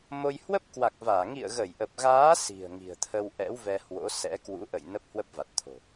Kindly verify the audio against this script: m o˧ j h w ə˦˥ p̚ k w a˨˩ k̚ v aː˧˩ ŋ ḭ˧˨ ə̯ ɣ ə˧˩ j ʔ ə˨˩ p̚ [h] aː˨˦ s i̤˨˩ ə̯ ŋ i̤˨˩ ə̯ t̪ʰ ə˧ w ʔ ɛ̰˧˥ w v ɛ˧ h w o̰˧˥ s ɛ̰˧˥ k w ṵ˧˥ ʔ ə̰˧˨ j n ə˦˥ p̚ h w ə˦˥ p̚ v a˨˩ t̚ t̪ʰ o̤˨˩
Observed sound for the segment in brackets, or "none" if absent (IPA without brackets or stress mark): ɣ